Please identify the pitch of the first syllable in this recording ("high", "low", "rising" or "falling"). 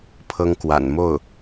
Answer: high